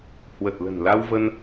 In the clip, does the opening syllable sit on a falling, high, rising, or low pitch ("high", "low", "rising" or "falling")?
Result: low